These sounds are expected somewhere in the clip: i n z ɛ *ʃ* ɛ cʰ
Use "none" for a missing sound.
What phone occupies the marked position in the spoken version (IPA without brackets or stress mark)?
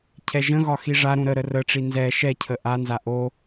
ʃ